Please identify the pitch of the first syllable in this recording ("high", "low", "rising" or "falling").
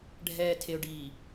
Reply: low